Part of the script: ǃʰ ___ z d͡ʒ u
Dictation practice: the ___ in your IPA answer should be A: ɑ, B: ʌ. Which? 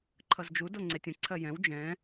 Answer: B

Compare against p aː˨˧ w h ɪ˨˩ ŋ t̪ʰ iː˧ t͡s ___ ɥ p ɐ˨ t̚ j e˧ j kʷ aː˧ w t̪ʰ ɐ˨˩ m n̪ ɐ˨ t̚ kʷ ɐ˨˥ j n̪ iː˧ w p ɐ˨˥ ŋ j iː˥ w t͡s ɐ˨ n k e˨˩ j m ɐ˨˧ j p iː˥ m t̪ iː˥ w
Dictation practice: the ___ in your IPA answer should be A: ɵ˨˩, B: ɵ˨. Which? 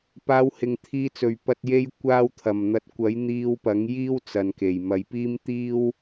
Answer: A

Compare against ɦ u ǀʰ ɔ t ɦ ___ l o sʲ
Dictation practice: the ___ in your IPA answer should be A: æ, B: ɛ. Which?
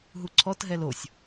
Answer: B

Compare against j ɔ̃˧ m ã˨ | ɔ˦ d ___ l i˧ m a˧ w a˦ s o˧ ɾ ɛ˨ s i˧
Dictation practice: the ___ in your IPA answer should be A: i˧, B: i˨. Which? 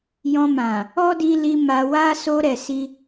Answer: A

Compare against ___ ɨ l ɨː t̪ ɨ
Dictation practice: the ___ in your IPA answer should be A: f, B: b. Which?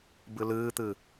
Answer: B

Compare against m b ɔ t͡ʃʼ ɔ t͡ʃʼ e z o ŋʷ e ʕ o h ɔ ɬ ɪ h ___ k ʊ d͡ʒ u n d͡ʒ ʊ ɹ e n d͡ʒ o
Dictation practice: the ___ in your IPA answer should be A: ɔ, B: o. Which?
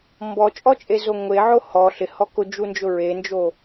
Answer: A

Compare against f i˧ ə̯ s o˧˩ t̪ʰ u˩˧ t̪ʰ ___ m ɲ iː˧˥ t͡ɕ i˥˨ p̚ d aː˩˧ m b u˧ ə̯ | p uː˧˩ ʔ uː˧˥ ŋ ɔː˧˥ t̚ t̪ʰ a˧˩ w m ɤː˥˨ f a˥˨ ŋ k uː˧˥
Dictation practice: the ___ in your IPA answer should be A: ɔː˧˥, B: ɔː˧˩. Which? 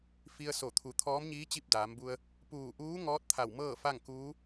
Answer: A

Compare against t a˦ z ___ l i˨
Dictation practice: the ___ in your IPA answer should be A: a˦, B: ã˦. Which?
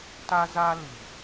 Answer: A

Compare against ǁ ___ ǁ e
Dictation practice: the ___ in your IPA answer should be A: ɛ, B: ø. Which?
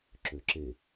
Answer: B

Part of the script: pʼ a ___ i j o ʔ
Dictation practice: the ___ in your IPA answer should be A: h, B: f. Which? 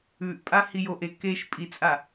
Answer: A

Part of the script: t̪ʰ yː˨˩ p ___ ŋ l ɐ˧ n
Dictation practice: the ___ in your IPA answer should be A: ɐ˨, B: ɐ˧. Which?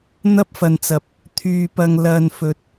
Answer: A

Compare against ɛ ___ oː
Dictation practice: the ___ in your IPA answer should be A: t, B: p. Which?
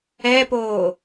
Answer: B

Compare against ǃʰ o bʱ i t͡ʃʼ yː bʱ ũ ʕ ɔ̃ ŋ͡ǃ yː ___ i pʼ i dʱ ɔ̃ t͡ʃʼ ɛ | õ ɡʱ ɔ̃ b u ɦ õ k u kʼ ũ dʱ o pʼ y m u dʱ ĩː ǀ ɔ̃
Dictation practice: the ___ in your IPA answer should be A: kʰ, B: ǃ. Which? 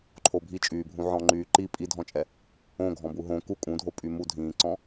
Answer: B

